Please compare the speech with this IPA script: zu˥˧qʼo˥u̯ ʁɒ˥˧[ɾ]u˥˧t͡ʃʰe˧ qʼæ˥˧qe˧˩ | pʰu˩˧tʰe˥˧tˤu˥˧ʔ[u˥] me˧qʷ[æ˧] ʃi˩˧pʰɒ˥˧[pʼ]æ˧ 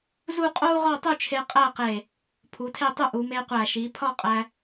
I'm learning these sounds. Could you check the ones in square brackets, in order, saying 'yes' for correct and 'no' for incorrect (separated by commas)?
no, no, no, no